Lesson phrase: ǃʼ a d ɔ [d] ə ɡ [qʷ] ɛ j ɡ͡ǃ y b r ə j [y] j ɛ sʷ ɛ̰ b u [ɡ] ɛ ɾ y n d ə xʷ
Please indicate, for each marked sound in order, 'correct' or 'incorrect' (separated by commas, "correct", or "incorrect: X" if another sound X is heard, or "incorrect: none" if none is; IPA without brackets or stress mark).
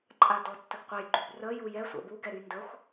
incorrect: tː, correct, incorrect: u, correct